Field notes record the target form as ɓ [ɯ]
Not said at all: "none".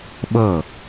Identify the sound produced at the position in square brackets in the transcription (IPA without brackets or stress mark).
ɤ